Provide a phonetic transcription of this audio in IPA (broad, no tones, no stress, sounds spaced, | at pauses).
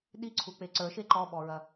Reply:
ɗ i ǀʰ u k͡p e ǀ ə˞ ʃ e ǃ ɔ ɓ ɔ ɹ ɐ